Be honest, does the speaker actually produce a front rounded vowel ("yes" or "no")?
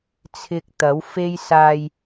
no